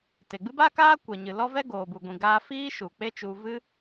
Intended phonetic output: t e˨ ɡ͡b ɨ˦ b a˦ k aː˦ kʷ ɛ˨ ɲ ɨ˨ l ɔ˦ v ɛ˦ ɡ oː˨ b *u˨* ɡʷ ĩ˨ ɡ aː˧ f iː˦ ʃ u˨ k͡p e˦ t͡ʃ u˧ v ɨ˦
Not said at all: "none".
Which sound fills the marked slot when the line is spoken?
u˨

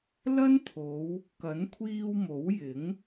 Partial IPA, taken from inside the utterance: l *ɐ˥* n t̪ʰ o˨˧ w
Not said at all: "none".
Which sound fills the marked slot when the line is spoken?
ɐ˥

